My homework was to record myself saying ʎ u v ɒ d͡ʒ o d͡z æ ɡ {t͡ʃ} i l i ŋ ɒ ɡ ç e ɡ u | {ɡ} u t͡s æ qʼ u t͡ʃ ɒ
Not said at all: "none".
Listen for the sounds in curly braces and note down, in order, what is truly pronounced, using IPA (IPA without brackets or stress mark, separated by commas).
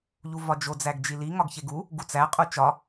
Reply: d͡ʒ, ɡ